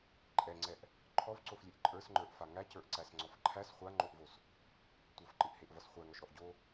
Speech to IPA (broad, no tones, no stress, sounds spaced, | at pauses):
ǃʼ ɛ ŋ͡ǀ ɛ ʔ | ǃʰ ɔ v ǀ o f lʲ e ʔ ǃʼ ə˞ s ŋ͡ǃ ə˞ ʔ f a ŋ æ c ə˞ ʔ ǀ æ s ŋ͡ǀ ɔ f ǃʰ æ s χʷ a ŋ͡ǃ o ʔ v o s | tʷ ʌ f ǃ ɨ ʔ h e ʔ v ʌ s χʷ æ ŋ ɔ ʃ ɾ ɔ ʔ ɟ o